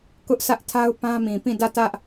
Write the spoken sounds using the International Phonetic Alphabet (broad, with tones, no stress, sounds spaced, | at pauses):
k ʊ˦ ʔ sʰ ä˦ ʔ tʰ a˦ ʊ̯ p ã˦ m ĩ˨ p ĩ˦˨ d ä˦˨ t ä˦ ʔ